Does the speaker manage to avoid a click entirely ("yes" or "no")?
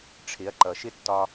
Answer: no